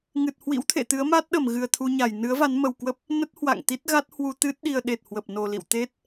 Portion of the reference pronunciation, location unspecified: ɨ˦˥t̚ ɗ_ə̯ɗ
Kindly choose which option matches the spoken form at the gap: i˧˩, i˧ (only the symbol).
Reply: i˧